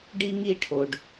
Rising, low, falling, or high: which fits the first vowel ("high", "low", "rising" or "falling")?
high